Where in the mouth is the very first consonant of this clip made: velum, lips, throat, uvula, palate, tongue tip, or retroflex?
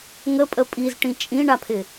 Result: velum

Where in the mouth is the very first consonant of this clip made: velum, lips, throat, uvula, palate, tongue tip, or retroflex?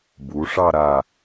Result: lips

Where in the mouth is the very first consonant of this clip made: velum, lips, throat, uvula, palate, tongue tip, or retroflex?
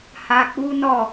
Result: throat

